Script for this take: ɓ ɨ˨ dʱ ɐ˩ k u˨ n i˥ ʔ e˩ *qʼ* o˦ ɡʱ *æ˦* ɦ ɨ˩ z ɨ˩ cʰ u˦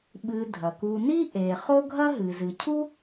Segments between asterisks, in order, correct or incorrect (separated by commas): incorrect, incorrect